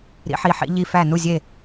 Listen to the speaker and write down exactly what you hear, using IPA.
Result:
ɾ ḭ˧˥ ħ i˧˥ ħ ḭ˧˥ ʎ i˧˥ f æ˥˩ n u˥˩ zʲ e˥˩

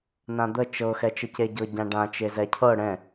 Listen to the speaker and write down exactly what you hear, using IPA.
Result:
n ã d̪ ə t͡ʃ ɤ x ɛ t͡ʃ ə c e ɟ ɤ ɟ ã ɖ ã t͡ʃ e z ɛ cʰ ɤ ɽ ɛ̃

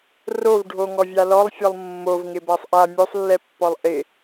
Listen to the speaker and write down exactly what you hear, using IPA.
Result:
r o v ɖʱ o ŋ ɔ vʲ a l ɔ lˠ fʲ ɔ lˠ mː o v ŋ ɪ b a sˤ ʔ a mʲ o sˤ lː ɛ pː ɔ lˠ ʔ ɪ

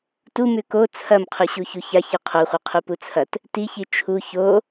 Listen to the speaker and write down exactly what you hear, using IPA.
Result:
t u m ʉ k o t͡sʰ ɐ m qʰ ʉ ɕ u ç u ç a ç ɨ qʰ o χʷ i qʰ u p u t͡sʰ ɐ t | t i ç i t͡ʃʰ u ç o

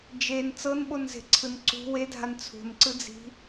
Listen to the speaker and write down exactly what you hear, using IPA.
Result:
d͡ʒ e n t͡s ɤ n ɓ o n z e̤ ǀʰ ɯ n ǀ ṳ w e dʱ a n t͡sʰ ṳ n ǀ ɯ d͡z i̤

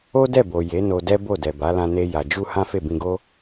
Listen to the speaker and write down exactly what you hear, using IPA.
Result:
o˦ d ɛ˦˨ b o˨ j e˨˦ n o˧ d ɛ˦ b o˦˨ d ɛ˨ b a˨˦ l ã˧ n e˧ j a˨ d͡ʒ u˧ h ã˦ f e˦˨ b ĩ˧ ɡ o˦

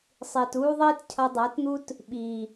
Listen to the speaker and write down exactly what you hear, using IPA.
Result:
sˤ iː˨ t uː˧ ðˤ iː˧ t cʰ ʌ˧ dˤ ʌː˨˦ t n̪ u˦ t | ɓ iː˨

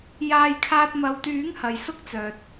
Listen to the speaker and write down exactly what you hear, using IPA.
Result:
j aː˧ j kʰ aː˧ t̚ m ɐ˨ w t̪ yː˨˥ ŋ h ɐ˨ j s ʊ˥ k̚ t͡s œː˨ t̚

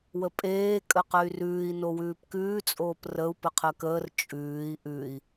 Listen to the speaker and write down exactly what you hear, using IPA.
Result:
w ə pʼ eː kʼ ə q ə y̯ r ʉː i̯ n o w ʉː p k ʉː t͡sʼ oː p r ə u̯ p ə qʰ ə k əː r t͡ʃʼ ʉː i̯ ʔ ʉ i̯

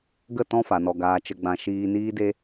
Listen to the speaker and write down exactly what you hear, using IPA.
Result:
ɡ ə˦˨ t ɔ̃˦ f a˨ n ɔ˨ ɡ aː˨ t͡ʃ ə˨ ɡ͡b ã˨ ʃ iː˧ n iː˦ d e˦

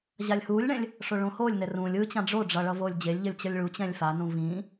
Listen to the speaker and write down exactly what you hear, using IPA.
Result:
ʑ a lʲ h uː lʲ ɳ ɛ̃ lʲ | ʂ o ɭ õ h oː lʲ n ɛ r ũ lʲ ɯ t͡ɕ ã ɖ͡ʐ o ɖ͡ʐ ʌ ɭ ʌ v oː lʲ d͡ʑ e lʲ ʎ ʌ lʲ t͡ɕ ʌ lʲ ɭ u t͡ɕ ɛ̃ lʲ f a n ũ v ĩː

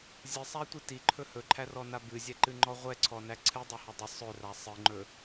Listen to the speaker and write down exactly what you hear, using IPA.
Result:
zʲ ɨ sˤ æ tʷ i t i ǃʰ ɵ h ɵ ǃʰ æ r ɔ n a b ɨ zʲ ɛ ǃ ɨ ŋ͡ǃ ɔ ʁʷ ɛ ǀʰ ɔ n æ ǀʰ ɨ dˤ ɵ h ɵ dˤ ɨ sˤ ɵ r a sˤ ɨ ŋ͡ǃ ɵ

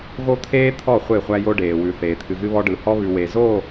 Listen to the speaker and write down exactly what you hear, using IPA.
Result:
ɣ o˦ t̪ʰ eː˦ t̪ʰ ɔ˦˨ χʷ e˦˨ χʷ æ˦ j o˦ ɖ eː˨ w ʉ˨ θ eː˨ t̪ʰ ɨ˨ ɣ ɨ˦ β ɔ˦ ɖ ɯ˨ h ɔ˦ β ʉ˨ w e˨ z o˦˨

